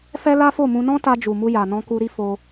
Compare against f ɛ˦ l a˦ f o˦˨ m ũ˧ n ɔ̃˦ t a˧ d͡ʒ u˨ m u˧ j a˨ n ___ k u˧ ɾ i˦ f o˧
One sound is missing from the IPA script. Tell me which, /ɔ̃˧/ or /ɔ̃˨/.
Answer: ɔ̃˧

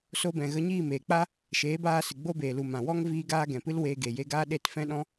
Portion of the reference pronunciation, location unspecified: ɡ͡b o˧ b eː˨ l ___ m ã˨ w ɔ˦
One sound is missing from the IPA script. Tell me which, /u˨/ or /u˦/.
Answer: u˨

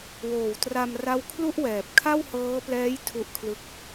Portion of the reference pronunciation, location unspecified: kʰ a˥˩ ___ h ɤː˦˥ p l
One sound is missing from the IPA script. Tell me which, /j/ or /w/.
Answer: w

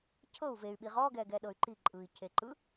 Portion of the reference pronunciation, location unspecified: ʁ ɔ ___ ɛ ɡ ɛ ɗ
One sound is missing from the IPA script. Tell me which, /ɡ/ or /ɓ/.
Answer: ɡ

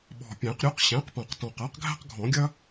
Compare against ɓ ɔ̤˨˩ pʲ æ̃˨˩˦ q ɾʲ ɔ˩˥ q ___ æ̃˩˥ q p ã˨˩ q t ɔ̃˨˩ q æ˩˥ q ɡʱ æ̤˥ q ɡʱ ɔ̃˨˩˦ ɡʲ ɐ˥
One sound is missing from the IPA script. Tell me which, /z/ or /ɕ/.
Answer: ɕ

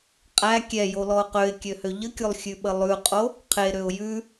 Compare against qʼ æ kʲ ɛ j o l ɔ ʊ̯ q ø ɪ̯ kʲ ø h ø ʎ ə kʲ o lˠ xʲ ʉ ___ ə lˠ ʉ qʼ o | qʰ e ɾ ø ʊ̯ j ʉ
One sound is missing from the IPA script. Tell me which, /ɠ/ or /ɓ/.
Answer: ɓ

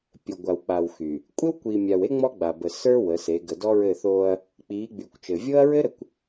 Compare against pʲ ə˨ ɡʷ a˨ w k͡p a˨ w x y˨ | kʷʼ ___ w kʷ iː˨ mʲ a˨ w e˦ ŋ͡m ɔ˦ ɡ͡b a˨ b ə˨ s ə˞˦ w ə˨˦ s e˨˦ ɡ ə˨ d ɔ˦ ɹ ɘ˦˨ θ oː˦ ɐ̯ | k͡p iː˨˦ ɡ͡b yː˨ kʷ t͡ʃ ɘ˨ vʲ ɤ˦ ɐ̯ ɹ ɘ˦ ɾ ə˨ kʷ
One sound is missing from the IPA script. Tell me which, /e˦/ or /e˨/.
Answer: e˦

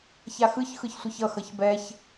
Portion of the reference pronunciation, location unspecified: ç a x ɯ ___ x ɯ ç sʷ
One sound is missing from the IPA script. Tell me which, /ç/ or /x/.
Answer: ç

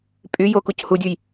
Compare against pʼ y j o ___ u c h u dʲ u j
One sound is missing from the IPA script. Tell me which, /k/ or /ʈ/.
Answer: k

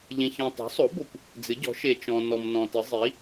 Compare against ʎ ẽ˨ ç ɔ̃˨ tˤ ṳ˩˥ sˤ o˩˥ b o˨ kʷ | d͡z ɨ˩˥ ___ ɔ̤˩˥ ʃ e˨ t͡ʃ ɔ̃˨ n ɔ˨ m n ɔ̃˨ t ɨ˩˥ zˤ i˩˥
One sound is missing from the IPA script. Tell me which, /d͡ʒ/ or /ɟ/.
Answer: ɟ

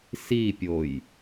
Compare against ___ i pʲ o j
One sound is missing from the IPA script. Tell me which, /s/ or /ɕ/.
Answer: s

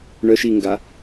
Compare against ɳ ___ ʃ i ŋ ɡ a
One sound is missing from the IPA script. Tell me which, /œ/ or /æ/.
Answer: œ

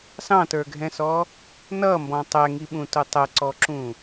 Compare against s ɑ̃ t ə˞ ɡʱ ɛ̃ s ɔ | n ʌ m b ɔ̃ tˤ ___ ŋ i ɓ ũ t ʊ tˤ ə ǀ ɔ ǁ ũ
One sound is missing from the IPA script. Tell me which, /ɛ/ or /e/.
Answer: ɛ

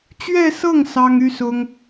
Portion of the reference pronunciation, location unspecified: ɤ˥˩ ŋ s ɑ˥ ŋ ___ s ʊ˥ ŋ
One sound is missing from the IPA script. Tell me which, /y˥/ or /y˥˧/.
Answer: y˥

